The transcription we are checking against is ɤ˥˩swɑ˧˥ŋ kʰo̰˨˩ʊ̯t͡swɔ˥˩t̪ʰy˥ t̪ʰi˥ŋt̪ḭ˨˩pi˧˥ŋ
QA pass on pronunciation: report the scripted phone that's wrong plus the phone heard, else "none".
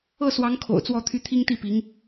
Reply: ḭ˨˩ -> i˥˩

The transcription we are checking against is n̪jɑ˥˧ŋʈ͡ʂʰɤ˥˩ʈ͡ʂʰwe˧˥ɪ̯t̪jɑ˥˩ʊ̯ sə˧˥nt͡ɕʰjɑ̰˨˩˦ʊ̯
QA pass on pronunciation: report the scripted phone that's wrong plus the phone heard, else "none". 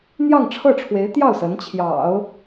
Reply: none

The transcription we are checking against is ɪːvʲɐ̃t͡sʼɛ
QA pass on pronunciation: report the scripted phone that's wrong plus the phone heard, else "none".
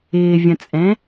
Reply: ɛ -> ɛ̃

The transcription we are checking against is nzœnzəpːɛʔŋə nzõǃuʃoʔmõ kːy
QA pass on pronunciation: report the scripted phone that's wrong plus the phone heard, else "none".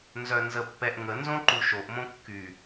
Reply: none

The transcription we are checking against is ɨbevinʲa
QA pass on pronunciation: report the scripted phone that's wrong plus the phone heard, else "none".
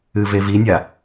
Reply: b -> v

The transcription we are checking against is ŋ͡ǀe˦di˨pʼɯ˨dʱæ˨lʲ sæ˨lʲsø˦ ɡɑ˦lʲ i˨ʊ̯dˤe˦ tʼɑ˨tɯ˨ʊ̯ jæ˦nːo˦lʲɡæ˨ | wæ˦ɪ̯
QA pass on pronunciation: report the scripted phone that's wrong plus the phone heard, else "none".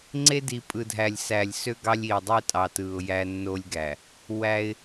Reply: none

